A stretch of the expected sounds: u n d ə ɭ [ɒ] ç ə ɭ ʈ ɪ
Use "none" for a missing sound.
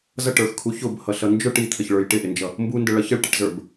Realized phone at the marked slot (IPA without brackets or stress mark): ʌ